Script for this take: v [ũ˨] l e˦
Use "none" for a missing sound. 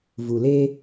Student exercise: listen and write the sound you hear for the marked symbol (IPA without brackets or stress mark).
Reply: u˨